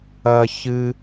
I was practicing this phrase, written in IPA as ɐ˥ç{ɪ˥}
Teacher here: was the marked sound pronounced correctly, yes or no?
no